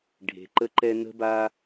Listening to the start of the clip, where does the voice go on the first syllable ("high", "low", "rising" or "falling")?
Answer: low